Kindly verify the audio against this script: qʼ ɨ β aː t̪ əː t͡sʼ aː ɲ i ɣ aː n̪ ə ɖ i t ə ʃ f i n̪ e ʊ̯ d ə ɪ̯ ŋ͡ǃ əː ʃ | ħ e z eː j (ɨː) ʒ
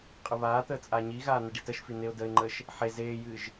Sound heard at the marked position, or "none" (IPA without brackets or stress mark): ɨː